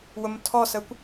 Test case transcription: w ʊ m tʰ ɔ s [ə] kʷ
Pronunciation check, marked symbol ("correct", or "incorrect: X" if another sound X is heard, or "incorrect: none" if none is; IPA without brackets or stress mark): correct